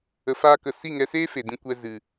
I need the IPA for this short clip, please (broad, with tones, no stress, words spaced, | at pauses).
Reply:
ə˧faː˦kə˧ si˦˨ŋɛ˧seː˦fe˨ dĩ˧ kʷɛ˧ zɨ˨